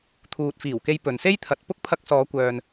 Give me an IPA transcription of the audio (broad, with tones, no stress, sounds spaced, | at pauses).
t̪ʰ uː˨ t̚ f iː˨˩ w k e˧ j p ɵ˨ n s e˥ j t̪ʰ ɐ˨ t̚ p ʊ˥ k̚ pʰ ɐ˧ k̚ s ɔː˨˧ kʷ œː˨ n